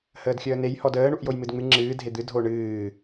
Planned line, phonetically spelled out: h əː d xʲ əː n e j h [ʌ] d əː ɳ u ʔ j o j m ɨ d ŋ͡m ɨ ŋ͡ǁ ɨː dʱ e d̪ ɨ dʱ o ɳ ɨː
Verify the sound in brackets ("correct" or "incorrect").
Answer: incorrect